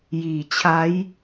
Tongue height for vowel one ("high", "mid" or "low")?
high